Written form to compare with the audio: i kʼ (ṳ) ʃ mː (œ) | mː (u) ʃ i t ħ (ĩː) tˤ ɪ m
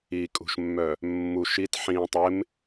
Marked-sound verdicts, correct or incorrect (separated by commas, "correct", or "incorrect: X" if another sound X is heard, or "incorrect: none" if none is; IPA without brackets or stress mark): correct, correct, correct, correct